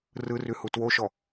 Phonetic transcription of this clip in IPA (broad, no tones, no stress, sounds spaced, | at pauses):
r ɯ r ʉ h u t w o ʃ ɔ